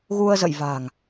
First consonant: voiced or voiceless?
voiced